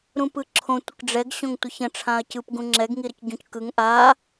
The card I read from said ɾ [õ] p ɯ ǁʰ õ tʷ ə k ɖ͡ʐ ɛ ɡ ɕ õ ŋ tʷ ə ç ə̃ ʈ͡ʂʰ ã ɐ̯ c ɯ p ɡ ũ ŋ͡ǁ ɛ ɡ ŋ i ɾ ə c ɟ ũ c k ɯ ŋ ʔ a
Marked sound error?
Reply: yes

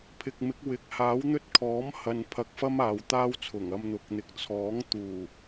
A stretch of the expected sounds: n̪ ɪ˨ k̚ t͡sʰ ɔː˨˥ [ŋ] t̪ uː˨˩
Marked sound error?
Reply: no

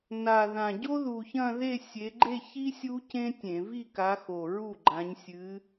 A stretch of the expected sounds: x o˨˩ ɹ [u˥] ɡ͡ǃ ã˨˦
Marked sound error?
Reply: yes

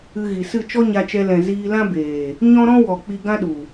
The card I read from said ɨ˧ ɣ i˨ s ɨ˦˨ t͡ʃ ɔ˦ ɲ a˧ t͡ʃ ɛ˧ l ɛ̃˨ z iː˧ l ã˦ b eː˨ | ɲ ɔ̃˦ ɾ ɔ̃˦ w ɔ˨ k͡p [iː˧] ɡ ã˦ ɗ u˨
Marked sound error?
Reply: yes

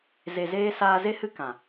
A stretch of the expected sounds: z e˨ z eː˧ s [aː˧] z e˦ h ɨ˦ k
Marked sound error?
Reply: no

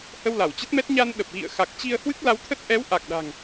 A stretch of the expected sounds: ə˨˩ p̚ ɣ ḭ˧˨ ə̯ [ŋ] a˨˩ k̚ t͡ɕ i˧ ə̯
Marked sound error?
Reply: yes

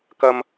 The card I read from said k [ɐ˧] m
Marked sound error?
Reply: no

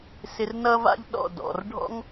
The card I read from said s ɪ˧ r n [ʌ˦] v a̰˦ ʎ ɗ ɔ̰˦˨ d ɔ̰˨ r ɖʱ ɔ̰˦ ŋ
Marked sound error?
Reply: no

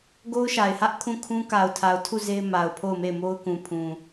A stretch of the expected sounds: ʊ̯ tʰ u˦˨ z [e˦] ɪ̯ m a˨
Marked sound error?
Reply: no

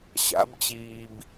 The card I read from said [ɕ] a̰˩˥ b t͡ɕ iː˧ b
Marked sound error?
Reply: no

